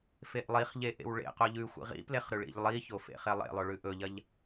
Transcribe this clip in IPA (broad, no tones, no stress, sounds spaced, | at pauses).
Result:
f e ʔ lˠ i χ ʎ e ʔ ḛ w ɭ ḛ q o ʎ ʉ xʷ ḭ ʁ ḭ p l e χ ɾ ʉ ɭ ḭ ʎ lˠ i ç o f ḛ χ e lˠ ḛ lˠ o ɭ ʉ ʔ ɵ ʎ ɐ ʎ